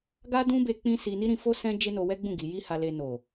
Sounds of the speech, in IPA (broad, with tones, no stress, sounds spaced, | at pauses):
ɡ a˦ d ũ˦ b e˧ k͡p ĩ˦ s i˧ n i˦ ɾ ĩ˧ f o˦ s ɛ̃˦ d͡ʒ e˦ n o˧ w ɛ˦ ɡ͡b ũ˦˨ ɡ i˨˦ j i˦ h a˧ l e˧ n o˨